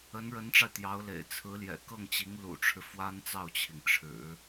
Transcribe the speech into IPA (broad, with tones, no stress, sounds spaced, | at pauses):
ə˧˥ n ɻ ə˧˥ n ʈ͡ʂ a˧ ɪ̯ t̪ j ɑ˧˥ ʊ̯ l ḛ˨˩ ɪ̯ t͡sʰ ɹ̩˧˥ l j ɛ̰˨˩ k ɤ˥˩ ŋ t͡ɕ i˧˥ ŋ l ṵ˨˩ ʈ͡ʂʰ ɻ̩˦ f w a˥ n t͡s ɑ˥˩ ʊ̯ t͡ɕʰ i˩ ŋ ʈ͡ʂʰ ɻ̩˨˩˦